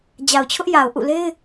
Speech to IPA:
d͡ʑ a˨ ʊ̯ t͡ɕʰ ʊ˦ ʔ j a˨ ʊ̯ ʔ ṵ˦˨ l e˦ ɪ̯

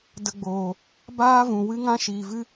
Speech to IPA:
d ə˧ ɡ͡b oː˨ | b aː˦ v ũ˨ w ɨ˦ ŋ ã˦ ʃ iː˨ v ɨ˦

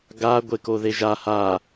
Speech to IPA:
ɡ a ɡʷ e k o ð e ʒ a h a

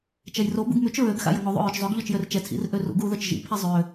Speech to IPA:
t͡ʃ ɛ j r o b ṵ ɡ m y t͡ʃ ɹ ø ɡ x a̰ j ə ŋ o ðˤ ṵ ɹ ø t͡ʃ zˤ ø ɡ ʎ ɔ t͡ʃ j ø r t͡ʃ ɛ tʰ ḭ r ʔ ø r ṵ ɡ u ð œ t͡ʃ ʒ ḭ pʰ i zˤ ø

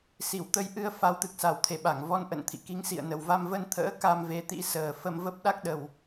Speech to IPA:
s i˧˩ w t̪ ə˧ j ʔ ɨ˧ ə̯ f a˨˦ w t̪ ɨ˨˩ k̚ s a˧˩ w t̪ʰ e˧˩ ɓ a˧˩ ŋ v ɔ˧ n ʔ ə̰˧˨ n t̪ʰ ḭ˧˨ k i˨˦ ŋ s ḭ˧˨ ə̯ n ə˨˩ w v a˧ m v ə˧ n t̪ʰ ə̰ː˧˥ k a˧ m v e˨˦ t̪ ḭ˧˥ s əː˨˩ f ə˧ m v ə˦˥ p̚ ɗ a˦˥ k̚ ɗ ə˨˩ w

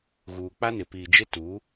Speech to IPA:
ɣ uː˨ k͡p a˦ n ɪ˨˦ p iː˨ d͡ʒ ɪ˦ t u˨˦

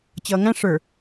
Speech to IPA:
t͡ɕ ʌː ŋ æ̃ ʂ ə˞

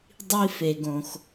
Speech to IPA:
dˤ i˦ f e˨ ɡ õ˨ x

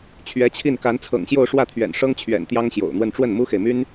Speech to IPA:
t͡ɕʰ ɥ ɛ˧˥ t͡ɕʰ i˥˩ n k a˧˥ n t͡sʰ ɤ̰˨˩ ŋ ɕ j o˥˧ ʊ̯ ʂ w ä˥˩ t̪ʰ ɥ ɛ̰˨˩ n ʂ ɤ˥ ŋ t͡ɕʰ ɥ ɛ̰˨˩ n t̪ j ɑ˥ ŋ ɕ j o̰˨˩ ʊ̯ n̪ w ə˥˧ n ʈ͡ʂ w ə˥˩ n m u˥ x e˨ ɪ̯ m y˥ n

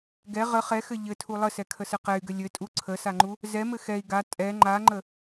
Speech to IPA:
ɡ ɛ ʁ ə χ ɛ x ɘ ʎ ɘ tʰ u lˠ ə s ɛ kʰ ə s ɘ q ɛ y̯ ɡ ɘ lʲ ɘ tʼ u ǀʰ ə s a ŋ͡ǃ u | z ɛ m ɘ x ɛ i̯ ɡ a tʼ ɛ ŋ͡ǃ a ŋ͡ǃ ə

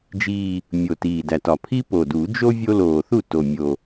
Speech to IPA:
d͡ʒ iː˨˩ | mʲ o˨˩ t iː˨˩ d æ˨˩ t ɒ˨˩ pʰ i˥ p o˨˩ d u˨˩˦ d͡ʒ o˥ vʲ o˥ l oː˨˩ θ u˥˩ t o˨˩ mʲ o˨˩

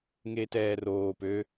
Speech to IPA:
ŋ eː t ɛː r oː p ø

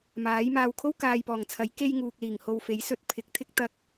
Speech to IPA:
m aː˨˥ j m aː˧ w kʰ o˥ w k aː˨ j p ɔː˨˩ ŋ t͡sʰ ɐ˨˥ j k e˧ j ŋ uː˨ k̚ l iː˨˩ ŋ h o˧ w f e˨˥ j s ɵ˥ t̚ pʰ ɪ˨˥ k̚ t̪ʰ ɪ˥ k̚ t̪ ɐ˥ k̚

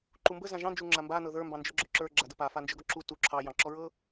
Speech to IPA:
ǃ u m b ə z ã ʒ ɑ̃ n d͡ʒ u ŋ͡ǁ a m b a n ɤ ð ə˞ m b ɑ̃ n d͡ʒ ə˞ ɡ͡ǁ ɔ ǁ ə˞ ɡ͡ǁ a d ə p a f a n d͡ʒ ə˞ ɡ ɔ ǁ u t u ǁʰ ɑ j ɑ̃ ǁ ɔ ɹ ɤ

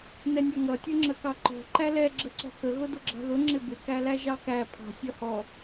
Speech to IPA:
n ɛ nʲ ɒ ŋ ʌ tʲ ʊ ŋ͡ǁ ə k ɑ ǃ ɔ̤ ǃ æ l ɛ ɡ͡ǁ ə ǀ ɔ̤ k ə ɣ ʊ d ʊ ɡ͡ǁ ɑ̤ ð ʊ ŋ͡ǁ ɪ b ɪ k æ l æ ʒ ɑ k æ pʰ ɑ̤ sʲ ʌ h ɔ

